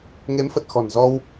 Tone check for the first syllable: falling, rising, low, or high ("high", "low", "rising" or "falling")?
rising